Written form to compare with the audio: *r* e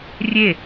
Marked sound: incorrect: rʲ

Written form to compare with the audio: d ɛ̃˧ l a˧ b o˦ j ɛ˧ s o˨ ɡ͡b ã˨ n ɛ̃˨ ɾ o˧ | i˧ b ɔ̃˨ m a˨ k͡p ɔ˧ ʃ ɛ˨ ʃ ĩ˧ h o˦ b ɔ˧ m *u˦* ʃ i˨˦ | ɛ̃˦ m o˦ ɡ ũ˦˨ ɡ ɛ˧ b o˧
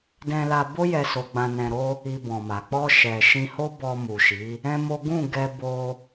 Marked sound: incorrect: u˨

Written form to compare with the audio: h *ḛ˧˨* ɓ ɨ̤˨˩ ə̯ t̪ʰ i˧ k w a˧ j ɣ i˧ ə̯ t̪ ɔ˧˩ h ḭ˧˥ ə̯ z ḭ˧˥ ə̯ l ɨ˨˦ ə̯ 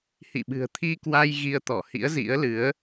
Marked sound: incorrect: ḭ˧˨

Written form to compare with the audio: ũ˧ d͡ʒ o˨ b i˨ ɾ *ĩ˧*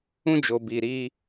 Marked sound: incorrect: i˧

